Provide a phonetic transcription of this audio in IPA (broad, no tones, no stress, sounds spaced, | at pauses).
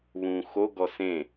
β ũː x o ɡ ɔ s ẽ